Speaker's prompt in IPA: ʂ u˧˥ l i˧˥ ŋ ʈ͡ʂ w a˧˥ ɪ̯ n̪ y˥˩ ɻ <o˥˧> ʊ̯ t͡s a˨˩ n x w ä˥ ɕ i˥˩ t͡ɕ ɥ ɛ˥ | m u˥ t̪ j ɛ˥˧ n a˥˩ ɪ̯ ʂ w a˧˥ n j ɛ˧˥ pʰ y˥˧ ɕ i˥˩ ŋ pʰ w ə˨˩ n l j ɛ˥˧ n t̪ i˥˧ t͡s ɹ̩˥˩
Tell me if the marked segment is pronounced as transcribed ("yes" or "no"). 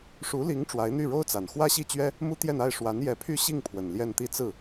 no